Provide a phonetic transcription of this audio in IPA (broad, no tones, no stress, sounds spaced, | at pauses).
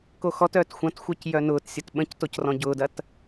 k o x ɔ t œː t xʷ ɐ̃ t xʷ œ c j œ n ʊː t sʲ ɐ t ɓ ə̃ c t o c r ɔ̃ ɟ ʊː d ɐ t